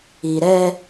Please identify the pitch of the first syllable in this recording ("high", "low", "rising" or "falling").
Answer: low